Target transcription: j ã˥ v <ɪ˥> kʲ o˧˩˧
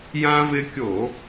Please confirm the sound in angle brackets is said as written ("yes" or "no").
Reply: yes